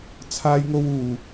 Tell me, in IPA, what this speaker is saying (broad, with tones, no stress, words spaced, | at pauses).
t͡sʰaː˥jŋo˥wuː˨